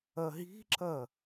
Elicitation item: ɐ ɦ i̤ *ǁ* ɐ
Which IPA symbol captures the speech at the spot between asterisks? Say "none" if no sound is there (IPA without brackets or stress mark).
ǁ